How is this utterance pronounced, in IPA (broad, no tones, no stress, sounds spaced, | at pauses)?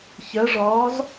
ç ɜ ʐ ɒː z